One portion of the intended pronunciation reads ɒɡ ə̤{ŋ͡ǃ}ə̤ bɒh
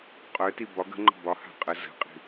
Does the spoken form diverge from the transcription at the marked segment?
no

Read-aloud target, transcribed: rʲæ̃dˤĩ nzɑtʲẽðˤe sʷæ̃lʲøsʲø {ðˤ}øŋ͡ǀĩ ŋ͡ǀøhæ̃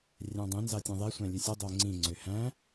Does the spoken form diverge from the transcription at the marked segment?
yes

